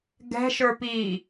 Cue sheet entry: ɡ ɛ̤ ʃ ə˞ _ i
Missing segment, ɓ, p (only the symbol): p